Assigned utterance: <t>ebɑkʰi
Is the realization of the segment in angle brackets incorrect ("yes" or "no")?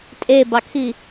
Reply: yes